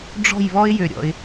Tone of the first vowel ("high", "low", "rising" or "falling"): falling